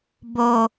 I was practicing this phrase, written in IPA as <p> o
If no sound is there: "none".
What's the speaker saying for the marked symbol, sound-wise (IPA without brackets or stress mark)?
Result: b